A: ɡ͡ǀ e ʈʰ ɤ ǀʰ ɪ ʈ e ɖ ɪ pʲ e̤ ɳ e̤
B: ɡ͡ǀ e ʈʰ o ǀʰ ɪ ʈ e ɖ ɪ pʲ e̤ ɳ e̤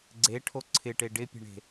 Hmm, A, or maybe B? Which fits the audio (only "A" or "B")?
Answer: B